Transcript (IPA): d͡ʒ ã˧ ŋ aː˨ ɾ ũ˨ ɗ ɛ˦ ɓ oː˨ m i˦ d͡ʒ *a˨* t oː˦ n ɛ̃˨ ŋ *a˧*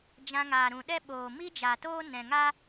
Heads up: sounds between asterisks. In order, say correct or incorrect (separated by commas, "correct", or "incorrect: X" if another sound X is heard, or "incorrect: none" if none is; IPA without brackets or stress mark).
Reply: correct, incorrect: a˦